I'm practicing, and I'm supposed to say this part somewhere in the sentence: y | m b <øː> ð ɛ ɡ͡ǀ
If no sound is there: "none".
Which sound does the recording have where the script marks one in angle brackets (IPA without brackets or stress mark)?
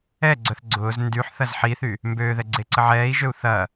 øː